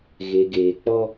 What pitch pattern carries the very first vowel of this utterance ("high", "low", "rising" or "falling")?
low